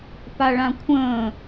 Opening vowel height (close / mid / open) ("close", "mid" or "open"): open